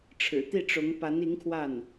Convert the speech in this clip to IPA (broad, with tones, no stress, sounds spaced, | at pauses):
ʈ͡ʂʰ ɻ̩˨˩ t̪ i˥˩ ʈ͡ʂ ʊ˧˥ ŋ p a˧˥ n i˧˥ ŋ kʰ w a˥˩ n